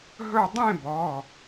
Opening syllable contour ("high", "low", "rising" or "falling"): falling